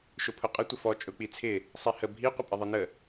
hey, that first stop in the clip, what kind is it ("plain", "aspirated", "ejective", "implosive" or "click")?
aspirated